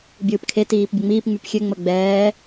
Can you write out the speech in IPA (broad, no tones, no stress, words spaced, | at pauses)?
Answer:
bʲɯːpkʰe tiːpbʲəŋ͡miːp ŋ͡mypxʲø ŋ͡məɡ͡bɛː